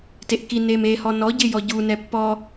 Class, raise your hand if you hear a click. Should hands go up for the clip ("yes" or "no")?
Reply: no